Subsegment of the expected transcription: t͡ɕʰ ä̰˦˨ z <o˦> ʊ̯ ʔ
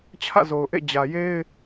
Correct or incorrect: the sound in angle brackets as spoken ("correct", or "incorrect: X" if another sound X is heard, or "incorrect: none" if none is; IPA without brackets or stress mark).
incorrect: o˨